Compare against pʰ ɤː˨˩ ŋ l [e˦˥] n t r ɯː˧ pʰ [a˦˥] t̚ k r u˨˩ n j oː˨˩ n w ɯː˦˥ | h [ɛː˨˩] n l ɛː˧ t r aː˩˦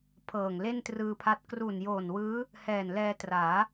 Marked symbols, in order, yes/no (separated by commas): no, yes, yes